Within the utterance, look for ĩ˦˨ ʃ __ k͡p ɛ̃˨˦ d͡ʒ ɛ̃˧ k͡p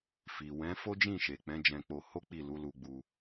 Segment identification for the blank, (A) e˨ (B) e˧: A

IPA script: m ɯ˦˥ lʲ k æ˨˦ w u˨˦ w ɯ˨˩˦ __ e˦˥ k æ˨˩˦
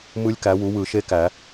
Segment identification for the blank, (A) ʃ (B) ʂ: A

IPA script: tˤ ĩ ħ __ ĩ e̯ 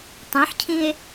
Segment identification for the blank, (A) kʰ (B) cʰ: B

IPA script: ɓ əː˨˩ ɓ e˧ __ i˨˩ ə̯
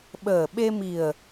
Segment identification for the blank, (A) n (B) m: B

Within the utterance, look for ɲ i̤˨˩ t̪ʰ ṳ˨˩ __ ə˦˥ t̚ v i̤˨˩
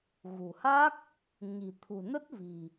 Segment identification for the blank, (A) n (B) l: A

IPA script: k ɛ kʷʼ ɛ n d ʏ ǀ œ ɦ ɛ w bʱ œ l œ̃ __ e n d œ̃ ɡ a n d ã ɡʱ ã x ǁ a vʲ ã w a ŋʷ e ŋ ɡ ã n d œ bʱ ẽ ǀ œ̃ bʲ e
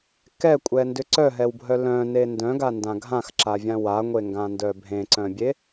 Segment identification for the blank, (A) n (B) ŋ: A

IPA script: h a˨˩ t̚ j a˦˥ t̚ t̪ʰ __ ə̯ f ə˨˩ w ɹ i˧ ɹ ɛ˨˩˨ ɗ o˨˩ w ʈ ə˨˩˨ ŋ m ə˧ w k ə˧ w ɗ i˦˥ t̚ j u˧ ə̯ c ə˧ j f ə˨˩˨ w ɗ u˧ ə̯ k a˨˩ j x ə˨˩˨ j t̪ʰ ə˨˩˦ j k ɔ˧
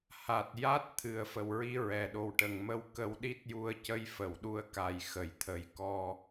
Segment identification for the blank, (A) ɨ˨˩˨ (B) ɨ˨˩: B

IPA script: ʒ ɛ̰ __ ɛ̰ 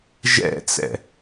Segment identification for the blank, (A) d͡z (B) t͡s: B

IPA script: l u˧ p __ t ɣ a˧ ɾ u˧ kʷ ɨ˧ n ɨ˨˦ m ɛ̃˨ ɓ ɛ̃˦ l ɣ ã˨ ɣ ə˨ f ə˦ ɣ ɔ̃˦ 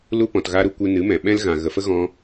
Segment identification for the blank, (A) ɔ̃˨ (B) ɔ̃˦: A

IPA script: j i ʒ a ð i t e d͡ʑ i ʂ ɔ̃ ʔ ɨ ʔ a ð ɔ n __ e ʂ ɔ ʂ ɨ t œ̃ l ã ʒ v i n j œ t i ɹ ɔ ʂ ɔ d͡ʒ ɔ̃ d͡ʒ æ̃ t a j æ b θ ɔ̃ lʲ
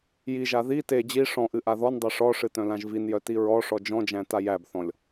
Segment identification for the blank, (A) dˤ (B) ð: A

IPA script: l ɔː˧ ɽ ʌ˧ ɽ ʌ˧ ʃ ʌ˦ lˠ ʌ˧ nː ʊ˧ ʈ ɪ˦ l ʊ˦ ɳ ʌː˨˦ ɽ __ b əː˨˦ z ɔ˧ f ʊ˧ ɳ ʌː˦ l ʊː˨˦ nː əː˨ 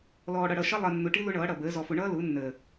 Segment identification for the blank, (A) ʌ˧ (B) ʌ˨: B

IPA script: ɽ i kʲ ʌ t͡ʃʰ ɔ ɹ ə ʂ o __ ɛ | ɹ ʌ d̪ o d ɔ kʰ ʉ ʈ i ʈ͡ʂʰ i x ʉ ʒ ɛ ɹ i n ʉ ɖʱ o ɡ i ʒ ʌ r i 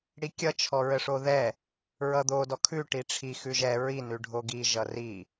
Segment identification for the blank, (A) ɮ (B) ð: B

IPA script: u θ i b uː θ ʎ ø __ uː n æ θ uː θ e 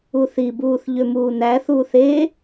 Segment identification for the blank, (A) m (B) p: A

